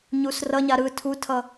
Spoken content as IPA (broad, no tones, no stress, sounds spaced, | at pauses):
ɲ u s r ʌ ɲ a ɾ ɯ tʰ u tʰ ʌ